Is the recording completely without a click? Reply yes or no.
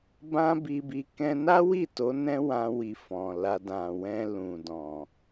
yes